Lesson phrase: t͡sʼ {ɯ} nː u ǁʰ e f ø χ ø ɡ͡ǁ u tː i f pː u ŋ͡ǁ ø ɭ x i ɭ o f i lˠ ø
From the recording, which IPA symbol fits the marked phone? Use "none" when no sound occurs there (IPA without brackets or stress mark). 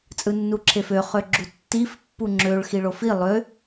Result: ɯ